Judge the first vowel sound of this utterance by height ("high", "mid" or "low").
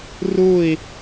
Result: high